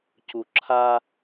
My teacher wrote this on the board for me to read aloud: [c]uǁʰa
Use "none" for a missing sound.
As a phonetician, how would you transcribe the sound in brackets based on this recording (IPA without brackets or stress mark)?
c